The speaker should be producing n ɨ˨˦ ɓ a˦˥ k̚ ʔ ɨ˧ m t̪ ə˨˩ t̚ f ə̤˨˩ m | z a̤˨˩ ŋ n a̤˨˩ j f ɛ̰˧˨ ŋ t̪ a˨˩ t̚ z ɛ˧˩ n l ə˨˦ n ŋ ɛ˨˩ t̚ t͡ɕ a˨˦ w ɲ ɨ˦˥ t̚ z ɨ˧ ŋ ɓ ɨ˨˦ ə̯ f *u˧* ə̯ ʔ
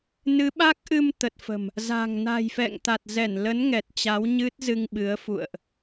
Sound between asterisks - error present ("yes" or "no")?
yes